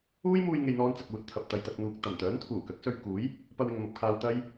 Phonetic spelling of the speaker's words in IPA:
uː˥ j m uː˧ j ŋ e˨ j n̪ ɔː˥ n t͡s ɐ˧ k̚ uː˨˥ t̚ t̪ʰ ɐ˨ p̚ t̪ ɐ˨ j t̪ ɐ˨ k̚ n̪ uː˨ k̚ t̪ ɐ˨˩ m t̪ œː˨˥ n t̪ʰ uː˨˩ k ɐ˨˥ k̚ s ɵ˧ ɥ k uː˨˥ j | p ɐ˧ w ɪ˨ ŋ m ɐ˨ p̚ kʰ aː˧ w t̪ ɐ˥ j

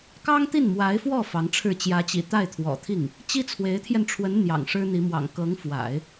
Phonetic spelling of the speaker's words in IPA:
k ɑ˥ ŋ t̪ i˥˩ n m w a˧˥ ɪ̯ f w ɔ˥˩ f ɑ˧˥ ŋ ʈ͡ʂʰ ɻ̩˥˩ t͡ɕ j ä˧˥ t͡ɕ ḭ˨˩ t̪ a˥˩ ɪ̯ t̪ʰ w ɔ̰˨˩ t̪ʰ i˥˩ ŋ | t͡ɕ i˥ t͡sʰ w e˧˥ ɪ̯ t̪ʰ j ɛ˧ n ʈ͡ʂʰ w ə˧˥ n n̪ j ɑ̰˨˩ ŋ ʂ ɻ̩˥ n̪ i˧˥ m w ɑ̰˨˩ ŋ k ɤ˧˥ ŋ f w a̰˨˩˦ ɪ̯

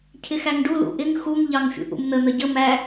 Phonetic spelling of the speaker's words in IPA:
cʰ ɪ x æ ŋ ɖ u l ṵ ʔ ɪ ŋ x u ŋ ʎ ɑ ŋ fʲ ṵ ʔ ṵ m n̪ ə n̪ ə ɟ ə m æ

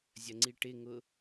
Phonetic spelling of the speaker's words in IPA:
zʲ ɐ ŋ͡ǀ i ʈ ɪ ŋ ʊ

